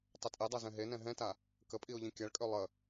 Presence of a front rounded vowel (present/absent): present